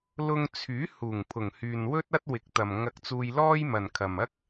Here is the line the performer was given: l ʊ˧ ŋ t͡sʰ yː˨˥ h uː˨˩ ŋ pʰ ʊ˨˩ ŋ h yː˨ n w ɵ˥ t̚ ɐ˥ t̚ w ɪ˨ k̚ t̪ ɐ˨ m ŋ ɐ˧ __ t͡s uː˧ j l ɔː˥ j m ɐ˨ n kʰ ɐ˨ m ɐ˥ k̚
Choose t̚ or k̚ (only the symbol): k̚